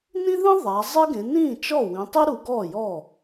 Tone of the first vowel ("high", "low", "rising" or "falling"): high